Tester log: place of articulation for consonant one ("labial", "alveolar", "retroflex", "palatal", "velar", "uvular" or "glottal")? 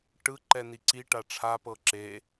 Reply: retroflex